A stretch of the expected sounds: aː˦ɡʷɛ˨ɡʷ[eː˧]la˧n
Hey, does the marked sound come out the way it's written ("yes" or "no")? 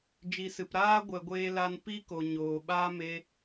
yes